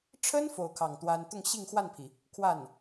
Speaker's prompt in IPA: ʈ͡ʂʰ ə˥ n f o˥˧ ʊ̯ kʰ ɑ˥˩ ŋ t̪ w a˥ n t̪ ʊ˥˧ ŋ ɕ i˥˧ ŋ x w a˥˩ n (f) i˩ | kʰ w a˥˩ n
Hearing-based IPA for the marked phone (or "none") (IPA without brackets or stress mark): pʰ